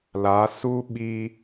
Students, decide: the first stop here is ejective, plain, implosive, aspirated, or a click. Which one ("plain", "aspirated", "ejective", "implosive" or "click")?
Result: implosive